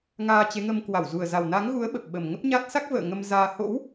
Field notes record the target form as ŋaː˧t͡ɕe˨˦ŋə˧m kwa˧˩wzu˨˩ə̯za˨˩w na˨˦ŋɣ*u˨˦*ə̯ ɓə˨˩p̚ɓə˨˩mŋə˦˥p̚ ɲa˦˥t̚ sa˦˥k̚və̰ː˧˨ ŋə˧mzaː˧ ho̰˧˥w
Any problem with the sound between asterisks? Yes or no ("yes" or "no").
no